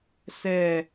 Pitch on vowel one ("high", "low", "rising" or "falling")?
falling